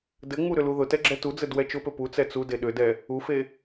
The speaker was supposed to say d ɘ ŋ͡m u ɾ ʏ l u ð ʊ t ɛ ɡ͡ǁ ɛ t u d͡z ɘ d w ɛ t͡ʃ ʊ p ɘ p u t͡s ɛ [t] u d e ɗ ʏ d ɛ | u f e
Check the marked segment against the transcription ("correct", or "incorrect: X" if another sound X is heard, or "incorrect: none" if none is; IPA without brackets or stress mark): incorrect: t͡s